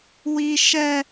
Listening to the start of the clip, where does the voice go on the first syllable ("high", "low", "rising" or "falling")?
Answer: high